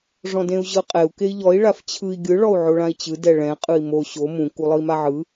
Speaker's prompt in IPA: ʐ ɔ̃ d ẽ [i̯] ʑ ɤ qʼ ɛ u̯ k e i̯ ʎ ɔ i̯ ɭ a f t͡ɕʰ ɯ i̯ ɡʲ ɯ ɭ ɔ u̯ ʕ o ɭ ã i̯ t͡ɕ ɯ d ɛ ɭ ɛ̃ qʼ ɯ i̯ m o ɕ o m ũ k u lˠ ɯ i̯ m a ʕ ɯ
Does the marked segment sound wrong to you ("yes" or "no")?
yes